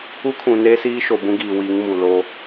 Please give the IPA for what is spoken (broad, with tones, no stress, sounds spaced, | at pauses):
u˦ kʰ ũ˨ n eː˦ s iː˦ ʃ o˨ b ũ˦ ɡ iː˨ w i˨˦ ŋ m u˨ l o˦